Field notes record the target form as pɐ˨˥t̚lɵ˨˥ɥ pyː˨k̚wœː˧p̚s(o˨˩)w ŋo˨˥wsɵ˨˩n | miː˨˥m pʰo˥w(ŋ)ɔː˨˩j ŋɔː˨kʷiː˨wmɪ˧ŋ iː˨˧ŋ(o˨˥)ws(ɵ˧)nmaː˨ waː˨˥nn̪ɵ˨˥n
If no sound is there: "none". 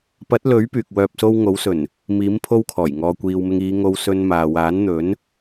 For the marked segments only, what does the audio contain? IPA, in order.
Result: o˥, kʰ, o˧, ɵ˧

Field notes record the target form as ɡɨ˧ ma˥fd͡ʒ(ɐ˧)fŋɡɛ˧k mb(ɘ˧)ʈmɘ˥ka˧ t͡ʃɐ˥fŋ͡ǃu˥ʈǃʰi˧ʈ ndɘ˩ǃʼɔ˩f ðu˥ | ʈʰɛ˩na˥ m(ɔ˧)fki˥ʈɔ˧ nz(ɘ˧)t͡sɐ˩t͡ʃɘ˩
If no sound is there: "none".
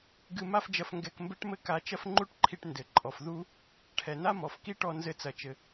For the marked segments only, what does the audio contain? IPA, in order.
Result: ɐ˧, ɘ˥, ɔ˩, ɘ˧

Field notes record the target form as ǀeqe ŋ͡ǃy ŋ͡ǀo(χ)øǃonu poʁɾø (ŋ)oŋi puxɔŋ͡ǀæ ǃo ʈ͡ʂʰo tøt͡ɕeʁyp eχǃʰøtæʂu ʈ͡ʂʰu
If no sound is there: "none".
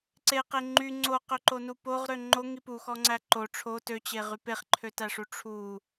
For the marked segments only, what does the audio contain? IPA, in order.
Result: q, ŋ͡ǃ

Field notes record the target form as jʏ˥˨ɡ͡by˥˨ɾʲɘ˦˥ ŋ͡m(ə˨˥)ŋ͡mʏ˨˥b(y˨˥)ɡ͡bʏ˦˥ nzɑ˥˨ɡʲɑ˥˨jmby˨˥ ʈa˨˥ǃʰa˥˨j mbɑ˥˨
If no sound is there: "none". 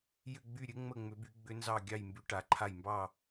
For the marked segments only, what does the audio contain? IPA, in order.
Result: ə˥˨, y˨˥

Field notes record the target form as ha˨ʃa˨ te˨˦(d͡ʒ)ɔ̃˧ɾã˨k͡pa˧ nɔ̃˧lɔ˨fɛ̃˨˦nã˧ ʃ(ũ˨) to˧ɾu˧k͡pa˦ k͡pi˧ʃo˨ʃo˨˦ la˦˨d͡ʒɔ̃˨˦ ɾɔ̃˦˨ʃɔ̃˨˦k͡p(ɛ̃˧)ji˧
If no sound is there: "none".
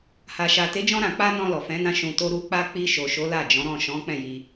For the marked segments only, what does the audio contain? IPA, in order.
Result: d͡ʒ, ũ˨, ɛ̃˦˨

